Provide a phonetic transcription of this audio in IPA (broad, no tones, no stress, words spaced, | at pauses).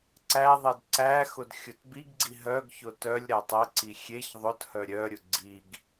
ǀæðˤed ǀæxʊd xʲʊtbiɡɡ͡ǀi ɦœɡçʊ tœlʲɾætˤ ɛǀi xʲeç ðˤʊthœ ɾʲœɾʲʊ ɡ͡ǀiɡ